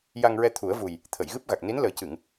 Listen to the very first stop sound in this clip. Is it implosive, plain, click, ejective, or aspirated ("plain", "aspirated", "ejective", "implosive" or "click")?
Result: aspirated